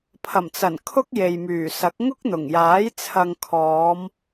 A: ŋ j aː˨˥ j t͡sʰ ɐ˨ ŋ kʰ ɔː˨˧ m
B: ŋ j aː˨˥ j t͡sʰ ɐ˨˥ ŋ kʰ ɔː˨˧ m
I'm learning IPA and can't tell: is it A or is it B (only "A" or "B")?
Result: A